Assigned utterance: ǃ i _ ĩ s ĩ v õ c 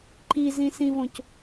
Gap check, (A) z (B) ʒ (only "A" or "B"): A